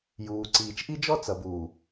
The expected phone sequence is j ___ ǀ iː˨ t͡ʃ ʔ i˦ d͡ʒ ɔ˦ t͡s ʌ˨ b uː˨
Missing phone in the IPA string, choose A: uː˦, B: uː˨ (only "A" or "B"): B